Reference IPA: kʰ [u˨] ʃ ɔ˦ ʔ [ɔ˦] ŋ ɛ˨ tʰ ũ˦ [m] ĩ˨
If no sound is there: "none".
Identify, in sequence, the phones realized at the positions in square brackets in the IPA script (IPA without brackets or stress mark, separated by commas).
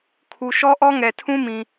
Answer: u˨, ɔ˦, m